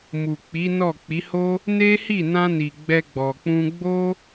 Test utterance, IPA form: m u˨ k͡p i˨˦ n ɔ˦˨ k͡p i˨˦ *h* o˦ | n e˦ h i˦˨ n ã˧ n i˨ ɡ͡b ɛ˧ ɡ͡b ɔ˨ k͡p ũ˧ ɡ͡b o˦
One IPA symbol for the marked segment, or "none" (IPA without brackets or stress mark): h